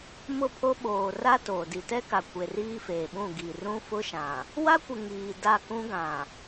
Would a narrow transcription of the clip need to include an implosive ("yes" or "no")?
yes